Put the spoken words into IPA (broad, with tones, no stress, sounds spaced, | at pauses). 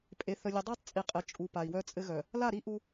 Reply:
pʼ e˨ θ ə˨ lʲ ɘ˨ dˤ œ˦ tˤ t͡sʼ i˨ qʼ ɘ˨ t͡ʃʼ u˨ p a˨ i̯ w œ˦ t͡sʼ ɘ˦ ɣ œ˨ | l a˦˨ ɾ i˦ ʔ u˦